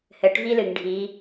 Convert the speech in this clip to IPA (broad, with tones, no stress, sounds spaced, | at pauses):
h ɘ˩˧ ʈ v i˦ l ɨ˩ ŋ ɖʱ i˩˧